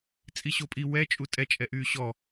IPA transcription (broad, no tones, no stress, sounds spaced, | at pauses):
t͡sʼ i ɕ o pʼ i w ɛ t͡ʃʼ u tʼ ɛ t͡ʃʼ ɛ ʔ yː ɕ ɔ